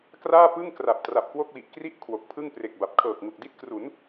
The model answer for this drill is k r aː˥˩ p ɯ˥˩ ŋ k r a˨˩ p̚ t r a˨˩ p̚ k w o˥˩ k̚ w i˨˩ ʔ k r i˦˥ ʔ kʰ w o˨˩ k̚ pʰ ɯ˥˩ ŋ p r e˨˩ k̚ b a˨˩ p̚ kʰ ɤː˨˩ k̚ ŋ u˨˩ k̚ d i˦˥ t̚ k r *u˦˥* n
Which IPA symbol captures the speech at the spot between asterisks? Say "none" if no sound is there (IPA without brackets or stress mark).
u˩˦